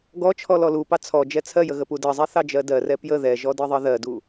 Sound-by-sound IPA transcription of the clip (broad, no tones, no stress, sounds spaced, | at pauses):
ɡ ɔ t͡ʃʰ ɔ l ɔ l u p ɑ t͡sʰ ɔ d͡ʒ ɛ t͡sʰ ɜ j ə ɣ ə p u d ɜ zˤ ɛ θ ɑ d͡ʒ ɜ d ɜ r ɛ p j ə ð ɛ ʒ ɔ d ɜ ðˤ ɜ ð ɜ d u